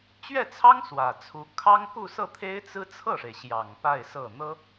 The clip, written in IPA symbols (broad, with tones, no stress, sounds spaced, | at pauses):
t͡ɕ ɥ ɛ˥˩ t͡sʰ ɑ˥ ŋ s w ä˨˩ t͡sʰ u˧˥ kʰ ɑ˥ ŋ k u˥˧ s ɤ˥˩ t̪ʰ e˥ ɪ̯ t͡s ɹ̩˥ t͡sʰ ɤ˥˩ ʂ e˩ ɪ̯ ɕ j ɑ˨˩ ŋ p a˥˧ ɪ̯ s ɤ˥˩ n̪ ɤ˥